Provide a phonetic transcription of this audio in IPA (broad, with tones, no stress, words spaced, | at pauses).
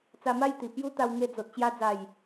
t͡sa˧ma˥˧jt̪i˨˩ pju˦t̪a˧wŋe˧d͡zo˨t̚ t͡ɕja˧d͡za˨˩j